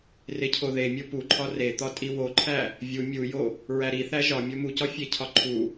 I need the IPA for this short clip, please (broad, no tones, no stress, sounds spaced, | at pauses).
r e cʰ o ð e mʲ o p u ǃʰ ɒ r e t̪ ɒ tʼ i w o ǃʰ æ | vʲ u mʲ u j o | ɹ æ ɾ i θ æ ʒ ɒ mʲ o m u c ɒ fʲ e cʰ ɒ ǃʰ u